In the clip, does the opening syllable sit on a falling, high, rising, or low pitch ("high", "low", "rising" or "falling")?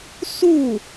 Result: falling